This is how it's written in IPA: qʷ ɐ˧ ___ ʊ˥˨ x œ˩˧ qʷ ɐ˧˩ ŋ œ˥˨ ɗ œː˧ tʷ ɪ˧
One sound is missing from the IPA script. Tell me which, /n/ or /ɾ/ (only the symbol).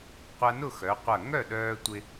n